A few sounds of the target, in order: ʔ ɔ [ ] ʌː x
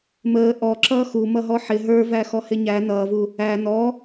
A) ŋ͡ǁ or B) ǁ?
B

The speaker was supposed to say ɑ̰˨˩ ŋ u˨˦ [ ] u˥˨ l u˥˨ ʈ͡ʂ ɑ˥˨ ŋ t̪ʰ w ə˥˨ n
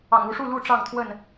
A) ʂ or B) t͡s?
A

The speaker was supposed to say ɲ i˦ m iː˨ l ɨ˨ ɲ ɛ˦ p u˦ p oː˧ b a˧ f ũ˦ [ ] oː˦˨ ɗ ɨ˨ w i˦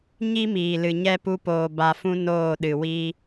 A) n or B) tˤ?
A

